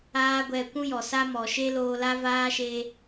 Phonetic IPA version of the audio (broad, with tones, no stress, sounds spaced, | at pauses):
aː˦ ɡʷ ɛ˧ kʷ ũ˦ j ɔ˨ s a˦ m ɔ˨ ʃ e˦ l oː˧ l a˦ v aː˦ ʃ e˧